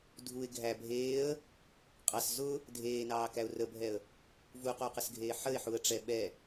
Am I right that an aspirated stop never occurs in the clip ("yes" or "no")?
yes